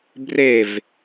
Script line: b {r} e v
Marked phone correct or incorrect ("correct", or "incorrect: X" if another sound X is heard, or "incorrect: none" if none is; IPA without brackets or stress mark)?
correct